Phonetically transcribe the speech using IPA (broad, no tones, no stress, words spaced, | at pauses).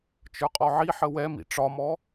t͡ʃə˞qʼɔʕiħə wɛmḭ ʈ͡ʂɒmɔ